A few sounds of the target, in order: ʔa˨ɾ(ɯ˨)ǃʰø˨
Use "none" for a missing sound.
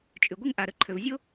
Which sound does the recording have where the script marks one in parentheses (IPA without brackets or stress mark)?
ə˨